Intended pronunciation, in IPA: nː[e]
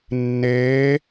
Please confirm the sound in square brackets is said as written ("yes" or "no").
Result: no